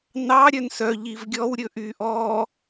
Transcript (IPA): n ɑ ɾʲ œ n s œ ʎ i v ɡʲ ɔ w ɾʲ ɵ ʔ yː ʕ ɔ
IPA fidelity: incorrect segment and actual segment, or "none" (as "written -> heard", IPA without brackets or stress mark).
ʕ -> ʔ